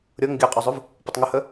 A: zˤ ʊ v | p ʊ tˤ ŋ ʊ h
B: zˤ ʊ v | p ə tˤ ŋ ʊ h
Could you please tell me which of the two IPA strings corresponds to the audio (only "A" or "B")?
A